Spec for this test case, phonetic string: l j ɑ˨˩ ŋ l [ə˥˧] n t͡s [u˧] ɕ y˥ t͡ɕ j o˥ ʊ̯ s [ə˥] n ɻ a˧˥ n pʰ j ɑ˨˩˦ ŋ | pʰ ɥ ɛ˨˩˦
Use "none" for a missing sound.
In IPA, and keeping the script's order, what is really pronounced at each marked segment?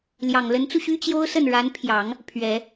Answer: ə˧˥, u˧, ə˥˩

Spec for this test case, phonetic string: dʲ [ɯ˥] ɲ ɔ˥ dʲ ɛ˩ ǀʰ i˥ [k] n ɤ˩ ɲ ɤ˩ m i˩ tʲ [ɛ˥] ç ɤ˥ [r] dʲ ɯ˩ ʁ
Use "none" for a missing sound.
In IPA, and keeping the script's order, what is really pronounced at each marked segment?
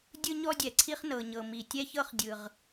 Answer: ɯ˥, χ, ɛ˥, χ

